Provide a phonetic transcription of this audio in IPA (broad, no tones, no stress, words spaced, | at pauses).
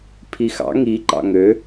pʰixɑ̰ ŋi ǃɑ̰ŋø